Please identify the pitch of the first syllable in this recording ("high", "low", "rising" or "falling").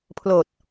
low